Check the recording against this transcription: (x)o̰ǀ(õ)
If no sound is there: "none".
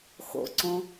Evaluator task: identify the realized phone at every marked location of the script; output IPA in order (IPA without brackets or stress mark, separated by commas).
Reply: x, õ